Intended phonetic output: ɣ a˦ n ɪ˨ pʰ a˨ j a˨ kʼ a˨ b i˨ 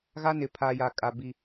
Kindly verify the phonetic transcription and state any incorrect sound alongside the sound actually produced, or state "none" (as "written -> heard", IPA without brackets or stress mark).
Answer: none